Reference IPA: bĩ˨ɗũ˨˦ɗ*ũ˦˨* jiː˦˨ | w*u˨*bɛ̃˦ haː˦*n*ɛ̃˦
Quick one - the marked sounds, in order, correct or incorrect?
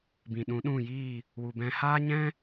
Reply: correct, incorrect: u˧, incorrect: ɲ

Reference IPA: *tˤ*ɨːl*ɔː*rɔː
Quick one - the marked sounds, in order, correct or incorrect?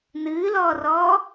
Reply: incorrect: n, correct

